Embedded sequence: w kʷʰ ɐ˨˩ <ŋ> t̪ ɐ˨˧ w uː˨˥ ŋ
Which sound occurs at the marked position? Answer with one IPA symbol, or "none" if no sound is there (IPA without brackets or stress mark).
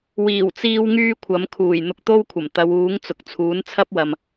m